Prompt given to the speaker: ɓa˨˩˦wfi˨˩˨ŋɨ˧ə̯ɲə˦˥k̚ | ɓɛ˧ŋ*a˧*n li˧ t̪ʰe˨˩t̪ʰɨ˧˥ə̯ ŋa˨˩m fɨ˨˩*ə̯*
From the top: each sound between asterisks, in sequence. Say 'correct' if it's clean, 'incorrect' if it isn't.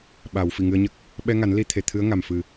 incorrect, incorrect

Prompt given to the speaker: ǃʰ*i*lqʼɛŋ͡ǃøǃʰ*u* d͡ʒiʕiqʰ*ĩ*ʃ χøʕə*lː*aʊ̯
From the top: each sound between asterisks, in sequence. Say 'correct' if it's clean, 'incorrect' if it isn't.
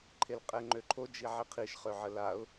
incorrect, incorrect, incorrect, incorrect

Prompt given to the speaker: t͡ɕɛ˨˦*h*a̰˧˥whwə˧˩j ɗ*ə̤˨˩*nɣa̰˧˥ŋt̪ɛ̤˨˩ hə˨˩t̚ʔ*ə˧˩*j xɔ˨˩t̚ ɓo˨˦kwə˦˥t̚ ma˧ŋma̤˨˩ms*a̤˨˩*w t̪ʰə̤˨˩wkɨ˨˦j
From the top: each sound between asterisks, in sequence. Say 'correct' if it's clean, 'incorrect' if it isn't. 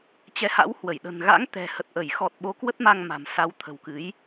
correct, correct, correct, incorrect

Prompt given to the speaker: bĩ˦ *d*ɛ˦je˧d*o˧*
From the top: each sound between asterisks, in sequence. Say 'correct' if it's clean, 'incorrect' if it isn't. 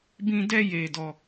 correct, incorrect

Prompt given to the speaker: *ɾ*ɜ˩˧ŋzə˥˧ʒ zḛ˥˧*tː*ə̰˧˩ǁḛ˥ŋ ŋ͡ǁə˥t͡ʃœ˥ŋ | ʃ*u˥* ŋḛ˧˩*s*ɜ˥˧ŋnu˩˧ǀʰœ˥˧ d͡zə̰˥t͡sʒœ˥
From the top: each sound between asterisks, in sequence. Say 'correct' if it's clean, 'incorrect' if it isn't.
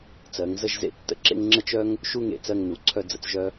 incorrect, correct, correct, incorrect

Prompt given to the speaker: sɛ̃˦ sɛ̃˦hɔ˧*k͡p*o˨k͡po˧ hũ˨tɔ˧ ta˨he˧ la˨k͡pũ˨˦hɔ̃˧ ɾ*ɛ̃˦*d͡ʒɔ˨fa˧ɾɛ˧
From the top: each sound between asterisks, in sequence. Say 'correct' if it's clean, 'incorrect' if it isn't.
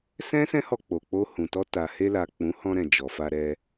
correct, incorrect

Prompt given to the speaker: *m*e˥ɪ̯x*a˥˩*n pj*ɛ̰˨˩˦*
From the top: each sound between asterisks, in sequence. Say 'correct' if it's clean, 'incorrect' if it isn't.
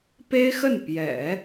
incorrect, incorrect, correct

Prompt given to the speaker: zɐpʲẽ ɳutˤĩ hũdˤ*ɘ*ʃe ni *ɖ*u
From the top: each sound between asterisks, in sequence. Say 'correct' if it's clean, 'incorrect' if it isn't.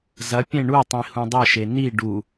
correct, correct

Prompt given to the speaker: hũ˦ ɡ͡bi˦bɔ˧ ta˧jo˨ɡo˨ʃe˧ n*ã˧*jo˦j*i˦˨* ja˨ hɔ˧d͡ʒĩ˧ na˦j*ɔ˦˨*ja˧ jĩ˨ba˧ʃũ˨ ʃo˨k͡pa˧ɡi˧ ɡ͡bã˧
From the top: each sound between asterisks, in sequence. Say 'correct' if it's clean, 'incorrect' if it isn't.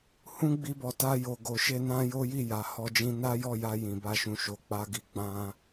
incorrect, correct, correct

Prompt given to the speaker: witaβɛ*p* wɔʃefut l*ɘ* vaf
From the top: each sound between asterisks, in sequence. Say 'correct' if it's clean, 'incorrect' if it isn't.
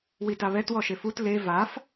incorrect, incorrect

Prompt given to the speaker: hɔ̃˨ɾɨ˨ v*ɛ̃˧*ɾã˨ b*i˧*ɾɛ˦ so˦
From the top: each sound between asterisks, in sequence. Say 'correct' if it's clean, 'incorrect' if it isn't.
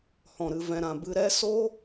incorrect, incorrect

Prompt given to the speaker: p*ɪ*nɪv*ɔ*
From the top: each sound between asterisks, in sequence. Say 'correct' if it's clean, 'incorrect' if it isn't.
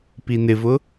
incorrect, incorrect

